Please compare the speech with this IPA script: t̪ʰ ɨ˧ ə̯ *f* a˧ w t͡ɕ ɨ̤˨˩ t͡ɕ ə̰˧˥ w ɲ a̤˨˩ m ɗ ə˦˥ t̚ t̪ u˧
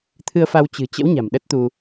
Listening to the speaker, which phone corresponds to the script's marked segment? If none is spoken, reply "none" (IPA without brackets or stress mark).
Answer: f